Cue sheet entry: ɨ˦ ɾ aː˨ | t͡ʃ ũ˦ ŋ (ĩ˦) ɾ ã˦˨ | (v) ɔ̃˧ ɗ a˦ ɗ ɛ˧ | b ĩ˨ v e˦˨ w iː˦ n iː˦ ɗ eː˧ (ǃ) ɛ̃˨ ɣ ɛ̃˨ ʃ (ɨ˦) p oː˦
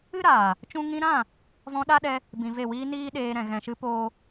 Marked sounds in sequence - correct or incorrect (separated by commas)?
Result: incorrect, correct, incorrect, incorrect